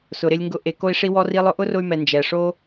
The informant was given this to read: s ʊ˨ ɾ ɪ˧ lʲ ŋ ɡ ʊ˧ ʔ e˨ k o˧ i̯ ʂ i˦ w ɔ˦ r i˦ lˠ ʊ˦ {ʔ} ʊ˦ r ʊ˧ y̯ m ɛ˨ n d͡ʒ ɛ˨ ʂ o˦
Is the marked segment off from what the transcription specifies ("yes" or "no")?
no